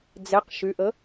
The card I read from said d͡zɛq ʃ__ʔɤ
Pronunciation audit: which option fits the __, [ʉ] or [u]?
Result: ʉ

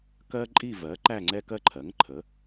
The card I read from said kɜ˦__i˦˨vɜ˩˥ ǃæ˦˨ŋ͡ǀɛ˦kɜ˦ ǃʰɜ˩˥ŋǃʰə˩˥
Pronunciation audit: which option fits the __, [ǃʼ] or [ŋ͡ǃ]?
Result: ǃʼ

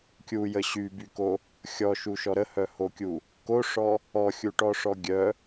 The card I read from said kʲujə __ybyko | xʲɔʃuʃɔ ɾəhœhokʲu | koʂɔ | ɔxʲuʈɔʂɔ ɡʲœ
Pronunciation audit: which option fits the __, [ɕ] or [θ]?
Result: ɕ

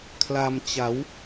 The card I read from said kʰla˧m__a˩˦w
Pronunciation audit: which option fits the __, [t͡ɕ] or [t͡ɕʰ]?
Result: t͡ɕ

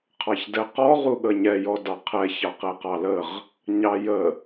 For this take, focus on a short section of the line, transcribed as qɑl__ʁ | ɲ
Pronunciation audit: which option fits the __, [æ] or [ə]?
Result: ə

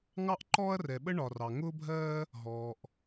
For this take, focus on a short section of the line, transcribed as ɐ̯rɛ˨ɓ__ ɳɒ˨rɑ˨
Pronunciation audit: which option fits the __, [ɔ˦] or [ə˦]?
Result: ə˦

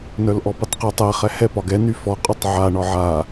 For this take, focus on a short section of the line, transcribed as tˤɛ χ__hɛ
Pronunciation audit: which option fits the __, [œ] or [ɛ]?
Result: ɛ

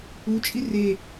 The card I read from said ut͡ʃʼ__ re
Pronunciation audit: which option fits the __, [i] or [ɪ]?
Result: i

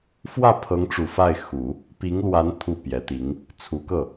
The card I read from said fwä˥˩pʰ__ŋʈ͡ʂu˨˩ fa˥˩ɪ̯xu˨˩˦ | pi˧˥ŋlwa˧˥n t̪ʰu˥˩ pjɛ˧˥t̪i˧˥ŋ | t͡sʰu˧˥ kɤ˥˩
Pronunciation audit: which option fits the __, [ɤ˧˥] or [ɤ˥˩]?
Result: ɤ˧˥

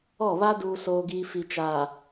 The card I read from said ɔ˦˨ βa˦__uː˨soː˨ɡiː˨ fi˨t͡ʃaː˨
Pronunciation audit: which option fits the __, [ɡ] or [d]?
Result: d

